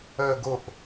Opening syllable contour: low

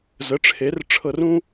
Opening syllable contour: rising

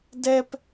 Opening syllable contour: high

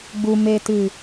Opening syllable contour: low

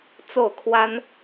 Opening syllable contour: falling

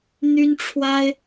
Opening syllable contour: high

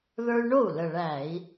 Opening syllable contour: high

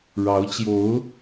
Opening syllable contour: rising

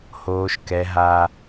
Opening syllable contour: high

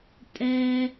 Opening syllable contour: high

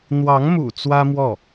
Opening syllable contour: rising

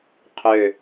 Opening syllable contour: low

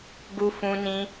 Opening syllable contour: high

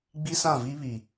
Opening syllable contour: high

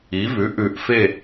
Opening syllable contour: rising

